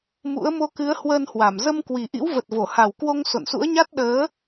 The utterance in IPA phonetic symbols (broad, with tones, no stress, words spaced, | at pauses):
mṵ˧˥ə̯ mo˧kɨ˨˦ə̯hwəː˧nhwa˧˩m zə˧mkwi˨˩ʔḭ˧˥w və˨˩t̚vo˧˩ha˨˩w kwo˧ŋ so̰˧˨nsṵ˧˥ə̯ɲa˦˥t̚ ɗəː˨˦